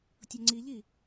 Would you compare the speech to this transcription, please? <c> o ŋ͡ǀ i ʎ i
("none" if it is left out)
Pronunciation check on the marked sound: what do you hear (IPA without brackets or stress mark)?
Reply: tʲ